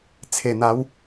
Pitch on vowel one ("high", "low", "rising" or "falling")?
low